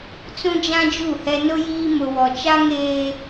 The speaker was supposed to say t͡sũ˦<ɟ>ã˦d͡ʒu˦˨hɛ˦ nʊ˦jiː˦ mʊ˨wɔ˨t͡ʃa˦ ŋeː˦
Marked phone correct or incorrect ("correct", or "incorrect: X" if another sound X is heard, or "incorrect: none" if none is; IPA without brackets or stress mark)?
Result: incorrect: d͡ʒ